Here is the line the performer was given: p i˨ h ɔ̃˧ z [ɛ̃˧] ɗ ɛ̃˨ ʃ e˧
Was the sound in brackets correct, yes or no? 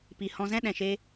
no